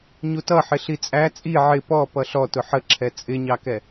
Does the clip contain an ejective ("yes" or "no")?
yes